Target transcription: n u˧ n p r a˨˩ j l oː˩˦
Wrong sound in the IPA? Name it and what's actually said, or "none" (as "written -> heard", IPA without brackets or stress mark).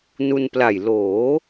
r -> l